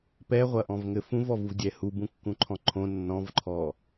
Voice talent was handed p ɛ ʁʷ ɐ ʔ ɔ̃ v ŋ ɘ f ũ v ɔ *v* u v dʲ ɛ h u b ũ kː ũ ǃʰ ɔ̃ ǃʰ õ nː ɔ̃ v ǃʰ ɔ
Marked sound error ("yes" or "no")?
no